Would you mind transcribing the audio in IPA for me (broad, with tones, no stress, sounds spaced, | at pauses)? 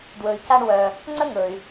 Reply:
d w ɵ˩ y̯ c a˧ ɳ w œ˩ | ŋ͡ǀ ə˥ ŋ ɵ˩ y̯